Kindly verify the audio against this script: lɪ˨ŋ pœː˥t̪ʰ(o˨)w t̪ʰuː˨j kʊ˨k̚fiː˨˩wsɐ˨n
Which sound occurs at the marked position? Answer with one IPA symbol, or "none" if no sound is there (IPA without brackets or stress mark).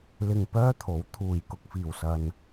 o˨˥